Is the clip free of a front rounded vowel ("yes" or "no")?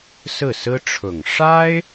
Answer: yes